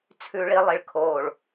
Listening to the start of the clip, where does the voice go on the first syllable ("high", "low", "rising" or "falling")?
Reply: low